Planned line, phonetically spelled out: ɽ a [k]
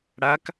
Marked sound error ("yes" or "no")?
no